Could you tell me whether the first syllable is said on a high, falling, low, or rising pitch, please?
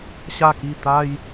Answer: falling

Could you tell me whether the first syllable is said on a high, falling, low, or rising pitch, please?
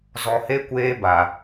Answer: low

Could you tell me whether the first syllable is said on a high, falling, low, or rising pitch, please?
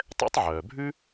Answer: high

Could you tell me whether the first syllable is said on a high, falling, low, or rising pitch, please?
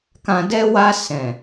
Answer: low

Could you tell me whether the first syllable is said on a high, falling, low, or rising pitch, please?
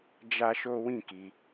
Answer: high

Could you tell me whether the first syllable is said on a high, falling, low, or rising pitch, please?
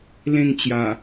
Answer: falling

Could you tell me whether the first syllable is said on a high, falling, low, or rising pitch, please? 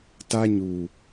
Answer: high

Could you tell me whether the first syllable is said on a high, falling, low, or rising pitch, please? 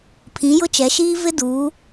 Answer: rising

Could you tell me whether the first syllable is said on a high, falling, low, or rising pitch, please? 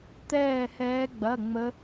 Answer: falling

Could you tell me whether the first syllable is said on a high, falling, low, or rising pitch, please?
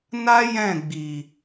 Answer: high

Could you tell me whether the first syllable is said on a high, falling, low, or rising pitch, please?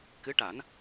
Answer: rising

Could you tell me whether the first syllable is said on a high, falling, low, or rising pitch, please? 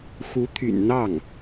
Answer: rising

